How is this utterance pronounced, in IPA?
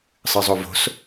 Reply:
sˤ ɨ zˤ o v o̤ s

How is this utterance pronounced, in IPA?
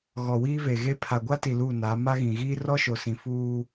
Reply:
ɣ ɔ˨ w iː˦ v e˨ ɣ e˦ pʰ a˨ ɡʷ a˦ t i˨ l u˦˨ n a˨˦ m a˦ ɣ ĩ˨ ɣ iː˦ r ɔ˦ ʃ o˨ s ĩ˨ f uː˦

